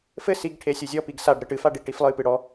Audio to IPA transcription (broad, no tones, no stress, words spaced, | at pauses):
fɘ siɡ ʈʰesʲuzʲɔ piɡsaɖ ɾɘʈɨf aɖiʈiflˠɨ pɨɽɔ